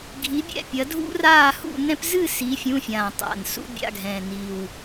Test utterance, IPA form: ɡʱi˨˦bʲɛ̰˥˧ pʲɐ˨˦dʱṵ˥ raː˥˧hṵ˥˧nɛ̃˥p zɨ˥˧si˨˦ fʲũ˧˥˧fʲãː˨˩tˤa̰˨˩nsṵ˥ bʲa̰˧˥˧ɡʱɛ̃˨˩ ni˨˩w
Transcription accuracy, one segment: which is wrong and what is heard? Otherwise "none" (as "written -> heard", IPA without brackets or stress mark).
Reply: none